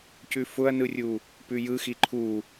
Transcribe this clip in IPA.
cʉfʊɐ̯nɯrʲu | pʉjɯxi ǃʰu

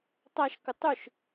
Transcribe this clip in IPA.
tˤaʃkʊ tˤʊʃ

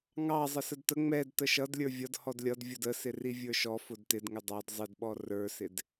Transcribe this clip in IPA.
ŋɑ zˤəsədtə ŋ͡mɛd təʃʌd lʲə˞vʲʌd hɔdlʲʌd vʲʊdəsɪri vʲə˞ʃɔ fʊdtɪdŋɪ dˤɑd zˤɪdɓɔ rə˞sɪd

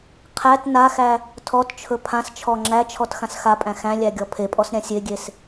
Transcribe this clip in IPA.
qʰæt naxæ | tʰɔtt͡ʃʰɵ pʰãst͡ʃʰɔ ŋ͡ǁæt͡ʃʰɔt xãsxapʼæ̃ xæ̃lʲæ ɡʲɔpʰepʼɔs ɾʲãsʲeɡʲes

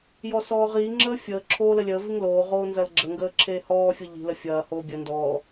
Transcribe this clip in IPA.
jɔsɔːʁiːŋ͡ǁəː fʲəː ǁʰoːləlʲəːviŋ loːʁoː nzɐlɡ͡ǁəŋɡəː ǁʰeːhɔːfʲɐ ʎi̤lə fʲɐːhoː bʲə ndɔ

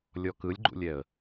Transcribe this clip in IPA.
lʲɔkɯlʲɡ͡ǃṵlʲɛə̯

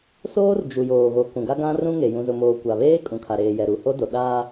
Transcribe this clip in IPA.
soː˦rd͡ʒu˨joː˨ ɣo˨ kũ˨ɡa˦ ɡã˦ rũ˦ŋe˨ jũ˨zʊ˨moː˨ kʷa˨βeː˦ kʼũ˨kʰa˨ɾeː˨jɛ˨ ɾu˨ho˦do˨ ɗaː˦

